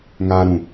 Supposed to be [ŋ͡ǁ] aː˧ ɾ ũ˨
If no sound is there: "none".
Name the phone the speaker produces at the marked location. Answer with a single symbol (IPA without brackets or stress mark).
ŋ